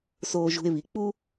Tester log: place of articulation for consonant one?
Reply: alveolar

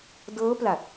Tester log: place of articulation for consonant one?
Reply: alveolar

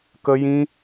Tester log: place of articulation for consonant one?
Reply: velar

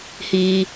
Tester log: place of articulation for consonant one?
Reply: glottal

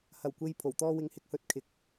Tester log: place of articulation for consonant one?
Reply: glottal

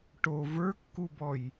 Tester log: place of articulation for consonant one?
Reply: retroflex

